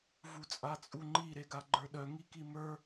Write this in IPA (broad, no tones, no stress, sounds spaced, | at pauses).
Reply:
v u t͡sʼ a t͡sʼ u ŋ͡ǃ i ɾ e ɡ a ɡ͡ǃ ə˞ ɗ œ ŋ i k i m ə˞